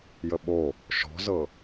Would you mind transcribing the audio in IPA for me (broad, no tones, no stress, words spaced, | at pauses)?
jəɓo | ʃɔ̤zɤ